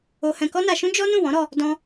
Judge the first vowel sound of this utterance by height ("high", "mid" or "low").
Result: mid